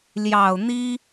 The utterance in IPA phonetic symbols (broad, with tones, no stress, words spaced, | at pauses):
ljɑ˨˩ʊ̯ n̪i˥